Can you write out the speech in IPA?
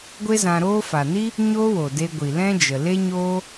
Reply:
ɡʷe˦zã˧ɾoː˦ fa˨ni˦ | ɲo˦wo˨de˧ ɡʷi˨lɛ̃˦ d͡ʒə˨ le˦ɲoː˦

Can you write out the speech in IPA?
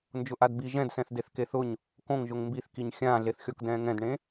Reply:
nd͡ʒʊʔadbi ʒɛ̃dsɛ̃θdeθ keθʊɲ | kõŋʒʊŋ mbiθkiɲ xʲãːɮeθxʲɔk dɛ̃ːŋɛ̃dɳẽ

